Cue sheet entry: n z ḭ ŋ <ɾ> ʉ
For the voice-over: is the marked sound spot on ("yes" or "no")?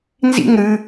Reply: yes